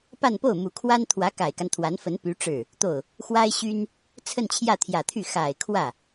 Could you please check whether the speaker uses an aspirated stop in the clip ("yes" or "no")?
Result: yes